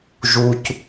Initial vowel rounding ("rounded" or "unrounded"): rounded